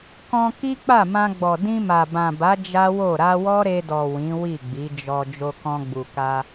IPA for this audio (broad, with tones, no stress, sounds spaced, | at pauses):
k ɔ̃˧ k i˦ k͡p a˦˨ m ã˧ ɡ͡b ɔ˨ d ĩ˧ m a˨ b ã˨ b a˨˦ d͡ʒ a˦ w o˦˨ ɾ a˧ w ɔ˦ ɾ e˧ d ɔ˨ w ĩ˨˦ w i˦˨ ɡ͡b i˨˦ d͡ʒ ɔ˧ d͡ʒ o˧ k ɔ̃˧ ɡ͡b u˨ k a˧